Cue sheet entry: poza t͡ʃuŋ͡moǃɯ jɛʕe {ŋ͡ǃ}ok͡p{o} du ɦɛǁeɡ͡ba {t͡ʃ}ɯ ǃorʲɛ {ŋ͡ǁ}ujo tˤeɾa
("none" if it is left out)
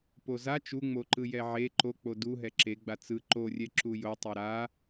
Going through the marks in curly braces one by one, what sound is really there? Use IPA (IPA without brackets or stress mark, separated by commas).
ǃ, o, t͡s, ǁ